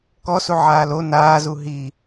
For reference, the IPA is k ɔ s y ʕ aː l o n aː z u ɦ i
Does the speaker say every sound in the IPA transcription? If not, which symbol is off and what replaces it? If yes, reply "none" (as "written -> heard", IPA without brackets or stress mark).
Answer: y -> u